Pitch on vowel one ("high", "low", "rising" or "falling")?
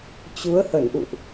rising